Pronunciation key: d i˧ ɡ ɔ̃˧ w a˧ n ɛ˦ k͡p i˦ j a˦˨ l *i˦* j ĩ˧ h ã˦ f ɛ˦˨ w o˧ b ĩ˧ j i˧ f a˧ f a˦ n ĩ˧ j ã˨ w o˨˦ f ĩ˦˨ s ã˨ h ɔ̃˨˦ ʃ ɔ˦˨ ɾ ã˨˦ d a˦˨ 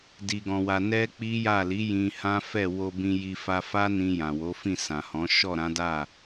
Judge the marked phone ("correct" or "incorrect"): incorrect